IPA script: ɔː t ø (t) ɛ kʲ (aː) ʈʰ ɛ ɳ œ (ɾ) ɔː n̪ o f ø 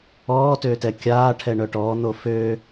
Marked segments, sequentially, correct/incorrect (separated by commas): correct, correct, incorrect